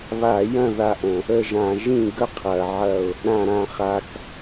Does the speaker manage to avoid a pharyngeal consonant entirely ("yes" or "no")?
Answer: no